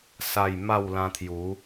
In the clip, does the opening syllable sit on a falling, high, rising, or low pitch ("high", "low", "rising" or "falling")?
falling